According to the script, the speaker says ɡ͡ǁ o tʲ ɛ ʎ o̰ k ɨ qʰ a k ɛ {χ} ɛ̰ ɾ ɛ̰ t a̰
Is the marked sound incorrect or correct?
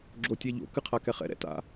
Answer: correct